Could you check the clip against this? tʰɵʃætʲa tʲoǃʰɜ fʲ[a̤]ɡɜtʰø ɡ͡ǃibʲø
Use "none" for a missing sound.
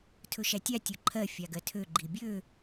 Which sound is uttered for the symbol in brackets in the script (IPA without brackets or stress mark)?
a